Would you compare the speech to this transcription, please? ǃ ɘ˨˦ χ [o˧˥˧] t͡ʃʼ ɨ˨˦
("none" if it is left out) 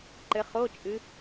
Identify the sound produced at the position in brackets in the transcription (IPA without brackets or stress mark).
o˧˥˧